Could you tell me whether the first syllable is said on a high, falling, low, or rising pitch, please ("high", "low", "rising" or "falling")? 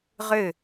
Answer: falling